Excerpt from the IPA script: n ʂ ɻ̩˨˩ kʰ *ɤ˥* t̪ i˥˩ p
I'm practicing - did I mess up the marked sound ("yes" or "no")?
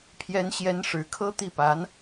no